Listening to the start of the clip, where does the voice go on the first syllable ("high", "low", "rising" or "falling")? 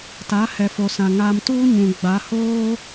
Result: rising